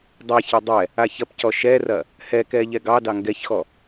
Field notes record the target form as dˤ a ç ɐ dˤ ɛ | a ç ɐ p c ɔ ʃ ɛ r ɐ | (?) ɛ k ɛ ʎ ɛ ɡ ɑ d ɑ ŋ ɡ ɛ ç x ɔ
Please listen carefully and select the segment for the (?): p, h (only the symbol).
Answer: h